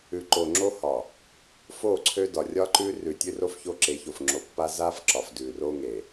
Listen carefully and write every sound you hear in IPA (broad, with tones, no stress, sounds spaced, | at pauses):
ʉ˨ ǃ o˨ ŋ͡ǁ o˦ h ɒ˨ | f o˦˨ ǀʰ ø˦ d ɒ˨ rʲ ɒ˦ ǃ ʉ˦ r ʉ˨ tʲ ʉ˦ r o˦ f ç o˦ ǁ e˨˦ ç o˨ f ŋ͡ǁ o˨ pː a˦ z a˦ f ǁ ɒ˨ f d ʉ˨ r o˦ ŋ e˨